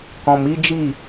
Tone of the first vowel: low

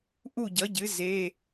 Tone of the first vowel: falling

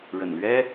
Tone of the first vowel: low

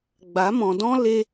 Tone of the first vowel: rising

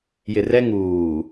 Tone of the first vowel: low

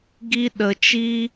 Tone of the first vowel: high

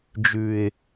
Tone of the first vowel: low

